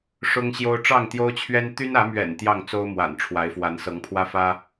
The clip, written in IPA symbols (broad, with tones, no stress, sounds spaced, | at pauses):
ʂ ʊ˦ ŋ ɕ j o˦ ʊ̯ ʈ͡ʂ ɑ˥˨ ŋ t̪ j o˦ ʊ̯ t͡ɕʰ ɥ ɛ˦ n t̪ y˦ n ä˨˦ m ɥ ɛ̰˨˩ n t̪ j ɑ˥˨ ŋ t͡s o˦ ʊ̯ m w a̰˨˩ n ʈ͡ʂʰ w a˨˦ ɪ̯ f w a˨˦ n s ɤ˨˦ ŋ pʰ w ä˦ f ä˦